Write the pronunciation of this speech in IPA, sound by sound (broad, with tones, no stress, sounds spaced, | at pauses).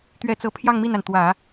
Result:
t̪ ɥ ɛ˥˧ t͡s ɤ˥˧ pʰ j ɑ˥˧ ŋ m i˥˩ n a˩ n t̪ w ä˨˩˦